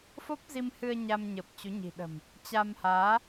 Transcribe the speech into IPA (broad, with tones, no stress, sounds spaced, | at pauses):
f o˦˥ p̚ z i˧ m h ɨ˧ ə̯ ɲ a˧ m ɲ ə˨˩ p̚ t͡ɕ u˨˦ ɲ i̤˨˩ ɗ ə̤˨˩ m | t͡ɕ a˧ m h aː˨˦